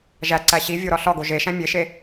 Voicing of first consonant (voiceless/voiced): voiced